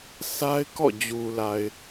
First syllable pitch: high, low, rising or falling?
high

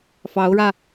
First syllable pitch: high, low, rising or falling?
rising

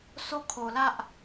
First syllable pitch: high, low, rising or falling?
high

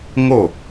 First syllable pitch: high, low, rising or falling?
falling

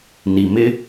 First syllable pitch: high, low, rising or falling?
low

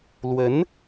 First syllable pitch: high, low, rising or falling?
rising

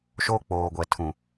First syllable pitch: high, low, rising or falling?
high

